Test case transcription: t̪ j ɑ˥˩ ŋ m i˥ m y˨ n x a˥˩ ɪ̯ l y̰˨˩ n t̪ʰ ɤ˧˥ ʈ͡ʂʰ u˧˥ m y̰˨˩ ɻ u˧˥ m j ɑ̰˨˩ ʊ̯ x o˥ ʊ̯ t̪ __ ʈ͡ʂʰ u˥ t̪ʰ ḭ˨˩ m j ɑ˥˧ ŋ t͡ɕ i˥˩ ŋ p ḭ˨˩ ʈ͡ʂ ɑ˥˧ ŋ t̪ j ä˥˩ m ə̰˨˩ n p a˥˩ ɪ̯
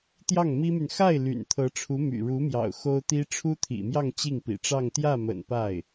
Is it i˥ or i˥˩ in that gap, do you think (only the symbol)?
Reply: i˥